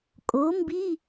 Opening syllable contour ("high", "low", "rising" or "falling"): rising